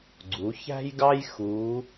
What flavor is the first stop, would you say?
click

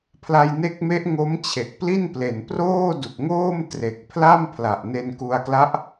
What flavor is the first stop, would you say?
aspirated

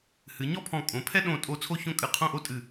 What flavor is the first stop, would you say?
aspirated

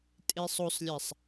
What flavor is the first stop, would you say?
ejective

